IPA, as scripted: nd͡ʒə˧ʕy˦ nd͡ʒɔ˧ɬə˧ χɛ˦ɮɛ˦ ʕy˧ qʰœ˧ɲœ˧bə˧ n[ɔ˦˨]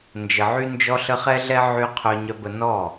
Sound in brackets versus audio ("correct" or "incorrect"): correct